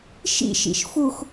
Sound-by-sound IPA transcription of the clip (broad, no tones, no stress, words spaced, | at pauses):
ʃḭʃḭʃ fux